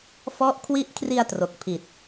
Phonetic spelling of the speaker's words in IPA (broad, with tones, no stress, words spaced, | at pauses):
fɔ˦˥ʔkʰwi˦˥ʔkʰri˧a̯ tro˨˩k̚pʰi˨˩t̚